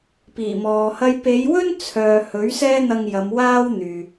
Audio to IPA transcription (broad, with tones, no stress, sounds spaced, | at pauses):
p iː˨˩ m ɔː˨ h ɐ˥ j p e˨˧ j w ɵ˥ n t͡sʰ œː˨ h ɵ˨˥ ɥ s ɛː˥ n̪ ɐ˧ ŋ j ɐ˨˧ m w aː˥ w n̪ yː˨